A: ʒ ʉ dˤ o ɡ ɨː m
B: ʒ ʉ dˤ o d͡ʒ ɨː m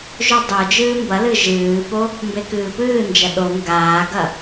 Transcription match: B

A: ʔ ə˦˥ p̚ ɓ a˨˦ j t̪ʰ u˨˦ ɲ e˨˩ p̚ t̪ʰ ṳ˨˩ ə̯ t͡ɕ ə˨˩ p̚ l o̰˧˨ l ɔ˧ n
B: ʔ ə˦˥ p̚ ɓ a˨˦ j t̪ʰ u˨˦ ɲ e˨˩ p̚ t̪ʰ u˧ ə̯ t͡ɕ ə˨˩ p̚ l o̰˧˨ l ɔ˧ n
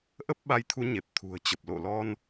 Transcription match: A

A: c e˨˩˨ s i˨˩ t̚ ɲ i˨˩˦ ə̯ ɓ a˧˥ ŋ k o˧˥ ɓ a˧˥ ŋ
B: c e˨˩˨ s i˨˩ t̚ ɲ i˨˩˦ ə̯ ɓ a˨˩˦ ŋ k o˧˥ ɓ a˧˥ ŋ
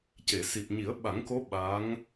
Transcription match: B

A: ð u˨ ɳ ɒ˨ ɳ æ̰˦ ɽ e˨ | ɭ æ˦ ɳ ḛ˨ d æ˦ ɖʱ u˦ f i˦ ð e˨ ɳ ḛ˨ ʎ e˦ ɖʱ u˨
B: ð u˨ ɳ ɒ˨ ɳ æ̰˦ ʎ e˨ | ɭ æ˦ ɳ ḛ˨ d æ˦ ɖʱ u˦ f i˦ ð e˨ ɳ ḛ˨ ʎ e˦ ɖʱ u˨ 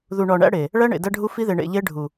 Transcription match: A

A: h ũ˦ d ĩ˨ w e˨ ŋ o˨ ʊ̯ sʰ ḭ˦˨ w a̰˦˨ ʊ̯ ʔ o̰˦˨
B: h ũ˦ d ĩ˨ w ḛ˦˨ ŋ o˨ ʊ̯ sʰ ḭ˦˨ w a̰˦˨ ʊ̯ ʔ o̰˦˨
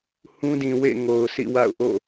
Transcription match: B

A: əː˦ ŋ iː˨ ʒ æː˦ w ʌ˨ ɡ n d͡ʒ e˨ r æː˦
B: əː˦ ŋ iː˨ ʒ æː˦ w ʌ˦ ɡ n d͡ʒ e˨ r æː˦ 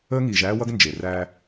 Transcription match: B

